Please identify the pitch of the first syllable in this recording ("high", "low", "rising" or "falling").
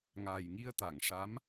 low